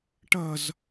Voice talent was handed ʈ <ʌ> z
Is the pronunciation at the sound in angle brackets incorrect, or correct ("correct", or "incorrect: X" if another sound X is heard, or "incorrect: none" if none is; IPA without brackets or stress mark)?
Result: correct